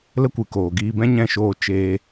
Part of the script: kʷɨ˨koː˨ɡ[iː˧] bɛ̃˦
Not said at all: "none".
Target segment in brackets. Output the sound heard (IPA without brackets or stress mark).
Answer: iː˧